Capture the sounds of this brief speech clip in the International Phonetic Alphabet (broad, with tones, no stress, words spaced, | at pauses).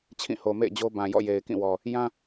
t͡ɕʰĩ˦˨ho˨ mḛ˦˨ɪ̯d͡ʑo˦ bã˨jɔ̰˦˨ je˨ɪ̯kĩ˦˨wɔ˨ | jã˦